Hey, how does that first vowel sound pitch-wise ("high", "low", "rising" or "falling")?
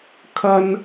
high